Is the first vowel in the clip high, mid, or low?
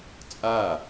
low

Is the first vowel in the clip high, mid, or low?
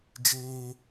mid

